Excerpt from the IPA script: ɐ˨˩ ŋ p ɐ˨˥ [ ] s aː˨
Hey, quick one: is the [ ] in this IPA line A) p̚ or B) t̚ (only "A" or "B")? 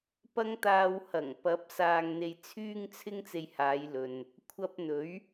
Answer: A